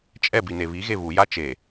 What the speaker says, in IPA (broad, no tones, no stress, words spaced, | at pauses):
t͡ʃʼɛbi neβiɣe βuja t͡ʃe